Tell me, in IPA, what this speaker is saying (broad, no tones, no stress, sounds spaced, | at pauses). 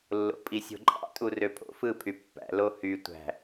lː o̰ pʼ i sʲ o̤ ǃʼ ɑ̰ tʼ u r ø pʰ o̰ f ɯ pʰ y pː æ̰ l o h y tʷ æ̤